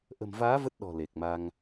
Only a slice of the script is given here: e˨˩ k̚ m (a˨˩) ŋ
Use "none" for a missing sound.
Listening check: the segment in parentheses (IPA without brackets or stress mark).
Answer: a˧